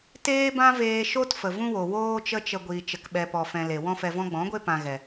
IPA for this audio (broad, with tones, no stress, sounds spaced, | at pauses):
t eː˦ b ã˦ v eː˧ ʃ o˦ t f ə˨ v ũ˦ w o˨ w oː˦ t͡ʃ ə˦ t͡ʃ ə˧ ɡʷ iː˨ t͡ʃ ə˧ k ɓ ɛ˧ p ɔ˧ f ɛ̃˧ l e˨ w ɔ̃˦ f ɛ˧ v ɔ̃˦ ɡ͡b ɔ̃˨˦ ɡʷ e˦ p ã˧ ɣ ɛ˨